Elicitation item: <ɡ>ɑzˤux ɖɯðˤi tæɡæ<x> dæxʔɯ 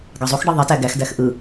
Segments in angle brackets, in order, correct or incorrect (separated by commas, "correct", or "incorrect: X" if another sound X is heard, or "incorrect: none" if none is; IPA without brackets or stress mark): correct, correct